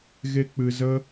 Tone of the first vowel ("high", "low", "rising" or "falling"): high